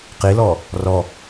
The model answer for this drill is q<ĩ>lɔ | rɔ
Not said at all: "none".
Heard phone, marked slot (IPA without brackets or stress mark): i